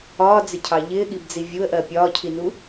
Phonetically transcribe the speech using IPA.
ɒː d͡z ɪ cʰ ɑ ʎ ɪː ɠ i b d͡z i vʲ u ə̯ ʔ ɜ pʲ ɒː cʰ i n u

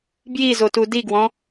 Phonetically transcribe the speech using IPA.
b j i z o t u d i ɡ w ɔ̃

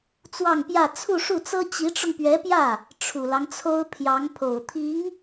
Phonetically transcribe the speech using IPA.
t͡s w ɑ˥˧ ŋ p j ä˥˧ t͡sʰ u˥˧ ʂ u˥˩ t͡s ɤ˥ t͡ɕ i˧˥ ʈ͡ʂ ʊ˧ ŋ p ɥ ɛ˧˥ p j ä˥˩ | ʈ͡ʂʰ u˨˩ l ɑ˦ ŋ t͡sʰ o˥ ʊ̯ pʰ j ɑ˧˥ ŋ pʰ o˨˩ ʊ̯ t̪ʰ i˧˥ ŋ

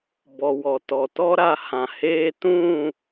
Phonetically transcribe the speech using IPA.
b ɔ˨ w ɔ˨ t ɔ˨ t ɔ˦ ɾ a˧ h ã˨ h eː˧ t ũ˦˨

